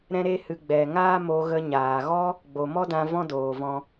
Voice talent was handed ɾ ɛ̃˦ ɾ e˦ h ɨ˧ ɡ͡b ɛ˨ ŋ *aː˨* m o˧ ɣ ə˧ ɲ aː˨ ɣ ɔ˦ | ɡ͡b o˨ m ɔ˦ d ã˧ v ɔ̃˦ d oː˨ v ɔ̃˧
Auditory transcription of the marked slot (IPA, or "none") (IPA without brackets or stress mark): aː˦